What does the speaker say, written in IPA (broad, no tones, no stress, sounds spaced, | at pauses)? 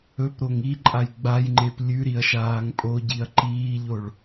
ɵ p ɾ o ŋ i ǃʼ a j ɡ͡b a j ŋ͡ǃ e p lʲ ʉ ɾ i ɐ̯ ʃ aː ŋ pʼ o ɟ i ɐ̯ ǃ iː ʎ o ɭ